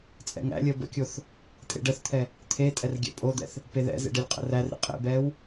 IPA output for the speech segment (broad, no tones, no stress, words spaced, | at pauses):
t͡sʼɛ̰ŋæ̰lʲəː bə̰kʲoθ | tʼḛɖəθt̪ʰɛ | t̪ʰetʼɛr ɡʲæ̰pʼod̪ɛ̰θ | peðɛ̰zḛ ɖɛlʲqʼə̰rærɾḛ qʼḛbɛːw